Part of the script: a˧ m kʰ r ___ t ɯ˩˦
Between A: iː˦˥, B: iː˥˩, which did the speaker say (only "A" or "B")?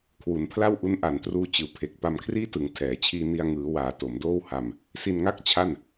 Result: B